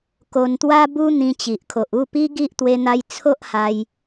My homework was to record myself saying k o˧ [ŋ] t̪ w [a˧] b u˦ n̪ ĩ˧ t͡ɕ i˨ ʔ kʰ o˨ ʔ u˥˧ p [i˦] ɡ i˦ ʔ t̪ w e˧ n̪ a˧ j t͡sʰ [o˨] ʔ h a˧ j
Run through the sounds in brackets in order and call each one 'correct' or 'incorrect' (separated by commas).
incorrect, incorrect, correct, incorrect